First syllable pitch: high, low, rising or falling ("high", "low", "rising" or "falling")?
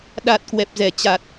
low